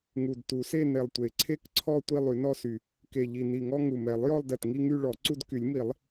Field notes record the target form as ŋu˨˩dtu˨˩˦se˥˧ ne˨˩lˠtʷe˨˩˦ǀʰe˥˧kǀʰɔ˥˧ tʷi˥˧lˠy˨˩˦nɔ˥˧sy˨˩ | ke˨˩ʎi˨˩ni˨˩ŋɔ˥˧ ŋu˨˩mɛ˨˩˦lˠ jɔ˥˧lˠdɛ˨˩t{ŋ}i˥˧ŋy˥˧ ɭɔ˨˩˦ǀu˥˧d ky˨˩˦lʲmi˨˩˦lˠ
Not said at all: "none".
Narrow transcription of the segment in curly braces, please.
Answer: ŋ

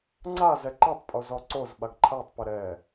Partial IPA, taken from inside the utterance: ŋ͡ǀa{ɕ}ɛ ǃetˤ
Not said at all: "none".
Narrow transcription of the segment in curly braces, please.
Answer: z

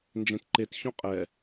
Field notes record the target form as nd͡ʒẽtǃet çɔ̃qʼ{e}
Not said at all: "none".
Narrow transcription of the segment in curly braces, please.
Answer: ɛ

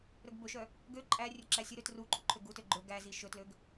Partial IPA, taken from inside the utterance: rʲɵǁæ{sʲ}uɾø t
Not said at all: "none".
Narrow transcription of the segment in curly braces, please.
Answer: sʲ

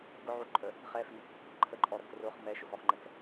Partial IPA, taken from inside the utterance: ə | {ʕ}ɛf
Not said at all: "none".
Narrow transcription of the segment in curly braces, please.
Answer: χ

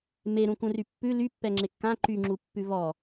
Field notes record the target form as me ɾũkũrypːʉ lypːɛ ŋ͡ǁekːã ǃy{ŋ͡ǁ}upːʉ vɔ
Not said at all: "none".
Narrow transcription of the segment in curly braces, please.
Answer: ŋ͡ǁ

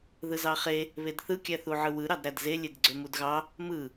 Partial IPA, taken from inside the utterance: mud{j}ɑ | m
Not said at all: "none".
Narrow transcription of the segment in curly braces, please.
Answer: ɣ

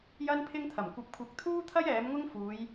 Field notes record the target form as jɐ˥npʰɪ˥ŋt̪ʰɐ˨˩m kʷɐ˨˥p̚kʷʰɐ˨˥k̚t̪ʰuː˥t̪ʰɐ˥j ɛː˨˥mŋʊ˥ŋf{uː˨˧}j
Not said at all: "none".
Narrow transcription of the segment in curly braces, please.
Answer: uː˨˧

